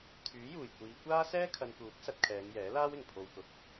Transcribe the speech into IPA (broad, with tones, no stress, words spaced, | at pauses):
t̪ʰyː˨˥juː˨˩j kʷiː˨˧ kʷaː˥ sɛː˥kʰɐ˨nkuː˨˥k̚ sɐ˧t̚kʰɛː˨˧ŋ jɛː˨˥laː˥wɪ˨˩ŋ pʰo˨wkʊ˨˥k̚